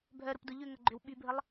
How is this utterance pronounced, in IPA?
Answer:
bʱ œ ɾ ʊ p d ʊ ʎ ʏ ŋ ɐ ɡ͡ǃ ʏ w ɓ y bʱ ə lˠ

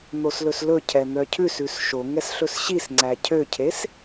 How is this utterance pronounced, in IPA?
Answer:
n̪ o s l ɵ s l ɵ cʰ ɛ n̪ œ cʰ ʉ s ʉ s ʃ o ŋ ɛ s ɬ ɵ s ɕ i s ŋ͡ǀ æ cʰ ø cʰ e s

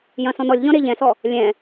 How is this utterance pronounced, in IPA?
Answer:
j ɐ̃ s ɔ̃ n ɔ lʲ ʎ ɔ̃ ɾ e ʎ ɛ̃ s ɔ | lʲ ɛ̃

